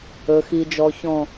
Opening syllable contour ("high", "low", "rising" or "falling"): low